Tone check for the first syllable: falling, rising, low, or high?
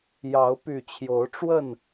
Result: rising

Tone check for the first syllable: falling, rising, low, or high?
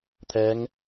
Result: rising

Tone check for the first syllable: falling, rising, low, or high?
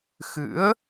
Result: rising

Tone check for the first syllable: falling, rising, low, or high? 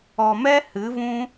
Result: low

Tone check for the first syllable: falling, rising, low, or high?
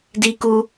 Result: high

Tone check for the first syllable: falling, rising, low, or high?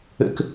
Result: high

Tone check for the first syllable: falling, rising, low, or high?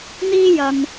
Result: high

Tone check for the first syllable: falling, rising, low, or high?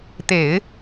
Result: low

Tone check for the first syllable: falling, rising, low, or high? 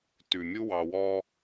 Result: low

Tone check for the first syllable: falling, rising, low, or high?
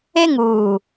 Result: high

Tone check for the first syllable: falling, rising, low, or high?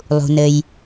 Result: low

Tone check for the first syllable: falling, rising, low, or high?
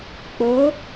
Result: rising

